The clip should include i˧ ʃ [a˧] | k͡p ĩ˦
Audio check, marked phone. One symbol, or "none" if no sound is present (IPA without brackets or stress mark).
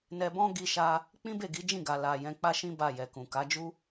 a˦